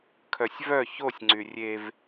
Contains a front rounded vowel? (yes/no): yes